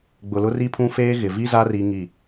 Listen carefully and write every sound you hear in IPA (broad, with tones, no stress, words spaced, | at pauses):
ɡ͡bʊ˨lʊ˦ ri˦pʰũ˦feː˦ ɣɪ˨vi˦za˦ ri˦ŋi˦˨